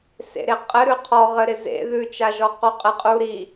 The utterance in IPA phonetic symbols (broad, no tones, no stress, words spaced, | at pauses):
sḛɾeqʼɘ ɾʉqʰɔ ʁɘɾɪzḛ ðʉt͡ʃaʒɔ quqʼɪ qʼu ɾi